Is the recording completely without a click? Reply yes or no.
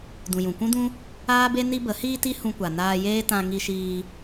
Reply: yes